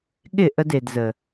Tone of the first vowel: falling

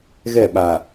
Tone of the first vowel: falling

